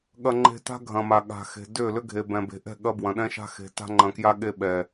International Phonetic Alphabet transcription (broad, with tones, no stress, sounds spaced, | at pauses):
ɠ ɐ˦ ŋ͡ǃ e̤˦ t a̤˦ ɡʱ ɐ̃˨ m a˨ ɠ a̤˨ x e̤˨ d ʏ˦˨ l ʏ˦ ɡʱ e˨ b ɛ̃˨ b e̤˨ ʔ ɛ̤˦˨ ɠ ɐ˦ b w ɐ̃˨ ɗ ɛ̃˦ ʃ a̤˦ x e̤˨ t a̤˦ ŋ͡ǃ ɐ̃˨ k j a˦ ɠ e˦ ɓ ɛ˨